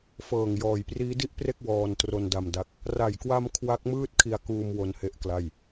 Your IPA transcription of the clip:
f ɤː˨˩ ŋ j ɔː˨˩ j p r iː˦˥ d i˥˩ ʔ p r e˥˩ k̚ w ɔː˧ n t r o˧ n d a˧ m d a˦˥ k̚ | r a˨˩ j k w a˧ m kʰ w a˦˥ k̚ m ɯː˥˩ t̚ kʰ i˧ a̯ k uː˧ m w o˧ n h e˥˩ ʔ k l a˥˩ j

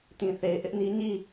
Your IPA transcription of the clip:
t ĩ˨ θ e˨ ɪ̯ ʔ ɪ˦ ʔ n i˦ ɲ i˦˨

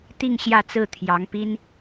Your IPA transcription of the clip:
t̪ i˥˧ ŋ ɕ j ä˥˧ t͡s ɹ̩˥˩ t̪ʰ j ɑ˧˥ ŋ p i˥ n

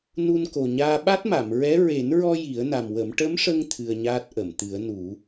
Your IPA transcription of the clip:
n u˧ n k o˨˩ ɲ aː˧ ɓ a˦˥ t̚ m a˨˩˨ m ɹ ɛ˧˥ ɹ e˨˩˦ n ɹ ɔ˧ j i˨˩˦ ə̯ n a˨˩ m w ə˨˩˦ m ʈ ə˧˥ m ʂ ə˧ ŋ t̪ʰ ɨ˧ ə̯ ɲ aː˦˥ t̚ ʔ ə˨˩˨ m t̪ ɨ˨˩˦ ə̯ n u˨˩˦

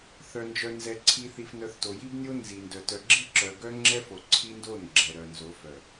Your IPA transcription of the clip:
θ œ˨ n d͡ʒ œ˨ n z ɛ˨ ǀʰ i˨ θ i˨ f n œ˨ θ t o˨ j i˦ b nʲ o˦ n z i˨ n d œ˨ t œ˨ ɡ͡ǁ i˦˨ ǁ œ˨ ɡ œ˦ ŋ͡ǁ ɛ˦ f o˨ ǀʰ i˦ n d o˦˨ n ɡ͡ǁ ɛ˨ ɾ œ˨ n z o˨˦ f œ˨

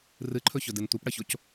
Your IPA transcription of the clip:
r ɨ ǃʰ ɵ ç ɵ d ɨ n tʷ ɨ p ɽ ɐ ç o c

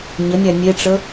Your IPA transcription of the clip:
ɲ ə nʲ æ nʲ e ʈ͡ʂ ə

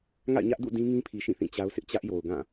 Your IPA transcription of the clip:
ŋ a̰˦˨ ɪ̯ ɲ ä˦ ʔ d ṵ˦˨ d ĩ˦ ŋ ĩ˦ pʰ i˨ ʃ ĩ˦˨ θ ĩ˦˨ t͡ɕ a˦ ʊ̯ s ɪ˦ ʔ t͡ɕ ä˦ ʔ j o˨ ʊ̯ ɡ ã˦˨

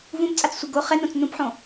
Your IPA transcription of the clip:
v ũ b t͡sʼ a t͡s sʷ i ɡ o χ ɛ n õ t͡s n ũ p ħ õ

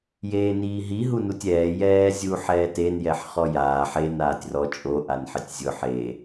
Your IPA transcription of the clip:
j eː n iː ɦ i ɦ u n u tʲ ɛː j ɛː zʲ u ħ ɛː t e n j ɛ ħ χ ɔ j aː ħ e n aː tʲ r ɔ t͡ʃʼ o ʔ a n ħ ɪ tʲ zʲ ʊ ħ e

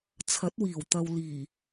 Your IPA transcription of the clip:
t͡sʰ ɐ˨˥ t̚ w iː˨˩ w t̪ ɐ˨ w l iː˨˩

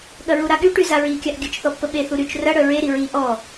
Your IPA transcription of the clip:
ɠ ɐ ɹ u ɾ a ɠ y ʈ y z a ɹ i kʲ a ʔ ɡʲ ə t͡ʃ θ ɔ pː ə ɓ e θ u ɾ y t͡ʃ r ɐ ɽ œ ɹ e ɾ i ɹ i ʔ ɔ

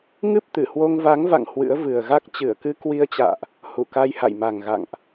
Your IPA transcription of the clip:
ŋ ɨ˦˥ p̚ t̪ ɨ˧˩ h w o˧ ŋ v a˨˦ ŋ v a̰˧˨ ŋ h w ɨ̰˧˥ ə̯ v ɨ˨˩ ə̯ ɣ a˦˥ k̚ t͡ɕ ɨ˧˩ ə̯ k ɨ˧ k w i˧ ə̯ t͡ɕ a̰ː˧˨ ʔ | h u˧˩ k a˧ j h a̰˧˨ j m a˨˩ ŋ ɣ a̰˧˨ ŋ ʔ

